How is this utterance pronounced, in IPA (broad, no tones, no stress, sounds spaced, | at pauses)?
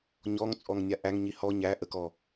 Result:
ɲ ɔ ŋ t͡sʼ ɔ ŋ nʲ a ʔ æ ŋ ɲ i h ɔ ɲ æ ʔ ə k ɔ